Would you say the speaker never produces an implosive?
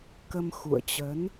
yes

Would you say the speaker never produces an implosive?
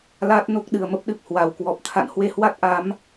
no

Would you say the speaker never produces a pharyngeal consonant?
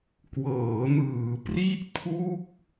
yes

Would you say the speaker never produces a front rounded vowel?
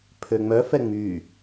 no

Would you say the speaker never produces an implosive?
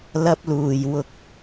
yes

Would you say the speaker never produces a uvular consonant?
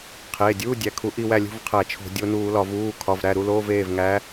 no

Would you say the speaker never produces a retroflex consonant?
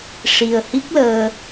no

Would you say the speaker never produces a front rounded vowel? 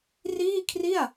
yes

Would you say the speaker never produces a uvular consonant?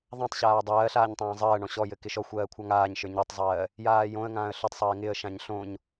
yes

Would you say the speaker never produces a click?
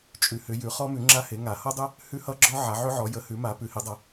no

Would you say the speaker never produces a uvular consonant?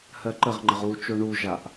no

